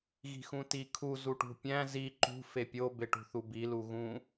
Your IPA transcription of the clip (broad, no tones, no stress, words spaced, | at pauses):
ɣi̤xũtikʰu zuʈṳpʲæ̃ zi ǃṳ fepʲo beʈṳθubi luɣũ